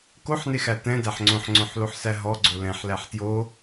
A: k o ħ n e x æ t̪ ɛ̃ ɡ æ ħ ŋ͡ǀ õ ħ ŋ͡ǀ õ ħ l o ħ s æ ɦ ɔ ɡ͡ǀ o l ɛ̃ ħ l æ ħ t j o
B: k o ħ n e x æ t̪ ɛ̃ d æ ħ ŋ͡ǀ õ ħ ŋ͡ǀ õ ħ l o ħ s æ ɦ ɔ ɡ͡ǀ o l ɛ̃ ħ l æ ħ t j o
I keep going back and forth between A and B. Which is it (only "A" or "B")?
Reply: B